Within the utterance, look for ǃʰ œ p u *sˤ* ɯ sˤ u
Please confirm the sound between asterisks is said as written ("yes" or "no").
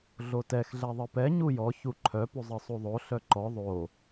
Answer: no